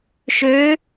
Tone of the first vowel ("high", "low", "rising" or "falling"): rising